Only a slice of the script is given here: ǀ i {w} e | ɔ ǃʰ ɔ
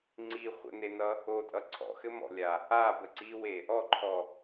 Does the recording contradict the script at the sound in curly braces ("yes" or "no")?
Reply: no